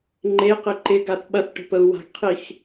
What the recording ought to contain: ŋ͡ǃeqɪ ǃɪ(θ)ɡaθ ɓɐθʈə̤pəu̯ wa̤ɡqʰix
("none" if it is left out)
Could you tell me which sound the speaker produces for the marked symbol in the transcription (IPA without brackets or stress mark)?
none